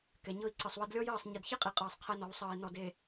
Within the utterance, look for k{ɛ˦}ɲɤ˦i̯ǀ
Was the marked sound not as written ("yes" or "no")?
yes